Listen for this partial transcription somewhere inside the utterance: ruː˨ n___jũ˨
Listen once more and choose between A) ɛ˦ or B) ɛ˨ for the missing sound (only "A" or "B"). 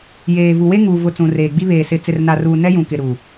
A